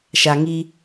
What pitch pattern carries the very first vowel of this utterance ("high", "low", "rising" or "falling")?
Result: low